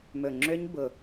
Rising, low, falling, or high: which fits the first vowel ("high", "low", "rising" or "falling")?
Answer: low